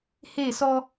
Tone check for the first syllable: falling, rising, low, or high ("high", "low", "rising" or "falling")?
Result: falling